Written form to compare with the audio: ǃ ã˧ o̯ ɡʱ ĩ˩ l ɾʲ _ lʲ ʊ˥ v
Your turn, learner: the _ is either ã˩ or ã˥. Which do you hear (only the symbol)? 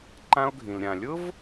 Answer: ã˩